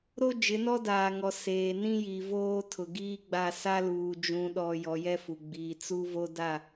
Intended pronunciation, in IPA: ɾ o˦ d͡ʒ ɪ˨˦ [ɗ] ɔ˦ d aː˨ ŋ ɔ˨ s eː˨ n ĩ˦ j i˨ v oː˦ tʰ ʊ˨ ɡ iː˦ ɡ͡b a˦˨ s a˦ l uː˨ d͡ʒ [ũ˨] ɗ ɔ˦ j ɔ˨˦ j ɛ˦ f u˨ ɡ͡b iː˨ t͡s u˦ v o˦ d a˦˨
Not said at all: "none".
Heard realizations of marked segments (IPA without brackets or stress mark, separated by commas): n, ũ˦